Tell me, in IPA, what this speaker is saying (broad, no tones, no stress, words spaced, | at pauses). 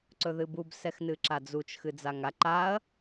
ǀɵðɨbub sɛxnɨǁad͡zut͡ʃ xɨd͡zaŋa ǃaɐ̯